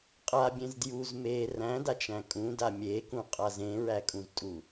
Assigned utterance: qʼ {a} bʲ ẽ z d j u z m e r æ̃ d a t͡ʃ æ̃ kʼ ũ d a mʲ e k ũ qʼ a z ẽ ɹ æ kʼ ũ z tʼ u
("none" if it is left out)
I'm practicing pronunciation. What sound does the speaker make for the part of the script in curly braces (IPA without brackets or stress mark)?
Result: a